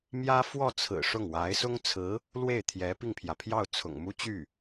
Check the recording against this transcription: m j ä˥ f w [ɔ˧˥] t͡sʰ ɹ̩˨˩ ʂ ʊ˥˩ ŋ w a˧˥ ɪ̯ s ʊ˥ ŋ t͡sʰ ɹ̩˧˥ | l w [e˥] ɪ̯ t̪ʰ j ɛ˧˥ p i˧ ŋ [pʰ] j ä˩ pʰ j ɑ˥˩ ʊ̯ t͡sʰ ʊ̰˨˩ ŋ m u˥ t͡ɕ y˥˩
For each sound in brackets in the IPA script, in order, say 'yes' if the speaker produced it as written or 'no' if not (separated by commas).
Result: no, no, yes